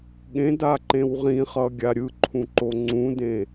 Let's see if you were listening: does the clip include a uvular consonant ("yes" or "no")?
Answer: yes